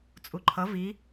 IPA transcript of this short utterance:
t͡sʼ u ǃʰ ʌ v i

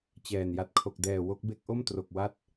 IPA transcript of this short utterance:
t͡ɕ ɛː˨˩ n j a˨˩ t̚ kʰ o˨˩ k̚ d ɛː˨˩ w o˦˥ k̚ b e˥˩ k̚ ʔ o˥˩ m t r o˨˩ k̚ w a˦˥ t̚

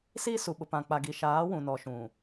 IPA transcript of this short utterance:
s iː˦ s u˨ ɓ ʊ˨ p ã˨ k͡p a˨ ɡ i˨ ʃ aː˨˦ w ũ˨ n ɔ˨ ʃ ũ˨

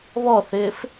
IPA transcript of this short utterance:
β ɔ θ ɪː f

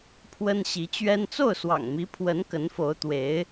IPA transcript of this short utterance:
pʰ w ə˥ n ɕ i˧˥ t͡ɕ ɥ ɛ˥ n t͡s o˥˩ ʊ̯ s w ɑ̰˨˩ ŋ m i˧˥ pʰ w ə˧˥ n k ə˧˥ n f o˧˥ ʊ̯ t̪ w e˧˥ ɪ̯

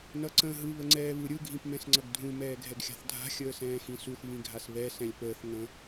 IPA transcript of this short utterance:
n ʌ ǀ ə̃ː ɦ ɯ β ə ŋ͡ǀ ɛː β ɯ ɾʲ ɯ ɡʱ ĩ p m ɛ̃ s ŋ͡ǀ ʌ ɡ dʱ ũ m ɛː ɡʱ ɛ ɡ xʲ a̤ θ dʱ a̤ xʲ əː s ɛ̃ː x ĩ s u θ β ĩ ɡʱ a s β ɛ s ɛ̃ lʲ p əː θ ŋ ə̃

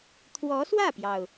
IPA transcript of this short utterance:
t̪ʰ w ɔ˧˥ s w ä˥˩ p j ɑ˩ ʊ̯

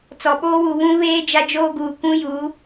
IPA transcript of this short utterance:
t͡s ɔ˨ ɓ oː˦ w u˨ β ũ˦ β eː˦ d͡ʒ a˦ d͡ʒ oː˦ ɡ uː˨ kʷ ũ˦ j u˨˦

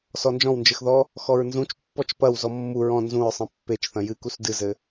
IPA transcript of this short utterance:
s ɔ n d͡ʒ ɔ̃ w n d͡ʒ ɘ x ð ɔ | x ɔ ɹ n z ũ t͡ʃ pː ɔ t͡ʃ p ɐ w z ɔ mː u ɹ ɔ̃ n z ũ ɹ sˤ ɛ̃ pː e t͡ʃ θ ɐ̃ j ɨ k u s d ɨ z ɘ

